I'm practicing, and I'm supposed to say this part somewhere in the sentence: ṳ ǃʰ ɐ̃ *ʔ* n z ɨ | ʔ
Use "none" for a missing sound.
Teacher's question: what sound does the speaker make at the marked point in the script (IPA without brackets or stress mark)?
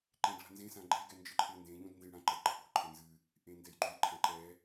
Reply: none